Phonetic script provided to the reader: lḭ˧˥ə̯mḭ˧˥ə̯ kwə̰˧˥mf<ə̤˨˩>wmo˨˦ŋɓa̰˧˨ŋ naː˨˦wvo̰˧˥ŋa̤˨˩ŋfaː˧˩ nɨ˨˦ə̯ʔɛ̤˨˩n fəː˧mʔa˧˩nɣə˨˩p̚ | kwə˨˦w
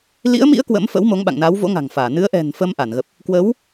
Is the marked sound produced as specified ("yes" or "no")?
no